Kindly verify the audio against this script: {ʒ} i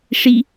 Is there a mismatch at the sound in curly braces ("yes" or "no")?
yes